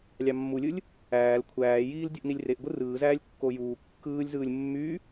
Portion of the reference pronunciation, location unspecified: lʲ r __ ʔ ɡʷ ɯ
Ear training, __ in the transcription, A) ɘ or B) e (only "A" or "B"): B